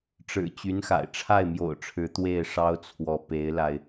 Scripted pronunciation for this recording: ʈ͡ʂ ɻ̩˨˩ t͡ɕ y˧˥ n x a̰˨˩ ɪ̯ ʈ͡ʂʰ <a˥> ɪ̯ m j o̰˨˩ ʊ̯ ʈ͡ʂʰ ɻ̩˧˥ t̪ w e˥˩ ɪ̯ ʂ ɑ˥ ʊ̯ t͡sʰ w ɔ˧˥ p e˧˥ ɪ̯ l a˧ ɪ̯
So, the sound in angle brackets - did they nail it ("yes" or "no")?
no